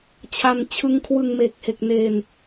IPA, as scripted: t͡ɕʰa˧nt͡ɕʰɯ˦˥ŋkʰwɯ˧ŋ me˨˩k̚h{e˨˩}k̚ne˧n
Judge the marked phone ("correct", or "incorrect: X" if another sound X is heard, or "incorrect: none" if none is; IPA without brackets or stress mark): correct